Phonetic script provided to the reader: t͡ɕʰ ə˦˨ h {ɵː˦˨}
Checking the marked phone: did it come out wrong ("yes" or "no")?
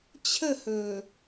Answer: yes